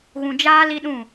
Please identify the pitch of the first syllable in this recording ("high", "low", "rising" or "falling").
low